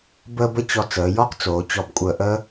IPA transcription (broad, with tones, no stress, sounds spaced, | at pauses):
b əː˥ b ə˥ t͡ɕ ɔ˧ t͡s əː˩˧ j ɔ˥ q t͡s oː˩˧ t͡ɕ ɔ˧˩ b kʷʼ əː˧˩ ʔ əː˥